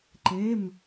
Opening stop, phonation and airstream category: click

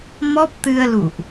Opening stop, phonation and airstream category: plain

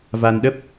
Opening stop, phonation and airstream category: implosive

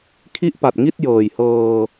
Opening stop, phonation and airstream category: aspirated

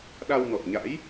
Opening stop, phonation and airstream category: implosive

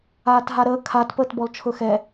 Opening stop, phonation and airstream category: plain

